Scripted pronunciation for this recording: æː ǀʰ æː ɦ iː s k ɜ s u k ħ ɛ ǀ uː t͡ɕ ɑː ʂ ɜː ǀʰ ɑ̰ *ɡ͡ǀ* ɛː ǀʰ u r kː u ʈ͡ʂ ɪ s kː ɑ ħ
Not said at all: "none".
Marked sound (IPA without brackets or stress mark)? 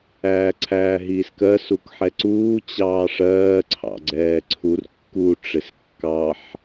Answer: ɡ͡ǀ